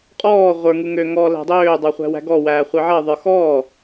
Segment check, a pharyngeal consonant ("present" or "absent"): present